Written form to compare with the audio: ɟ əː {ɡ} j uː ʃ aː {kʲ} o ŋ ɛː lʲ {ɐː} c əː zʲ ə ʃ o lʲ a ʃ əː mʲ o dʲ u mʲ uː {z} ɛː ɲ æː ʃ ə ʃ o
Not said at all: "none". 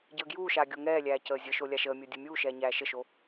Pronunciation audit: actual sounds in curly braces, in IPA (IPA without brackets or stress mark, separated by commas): ɡ, ɡʲ, æː, ʃ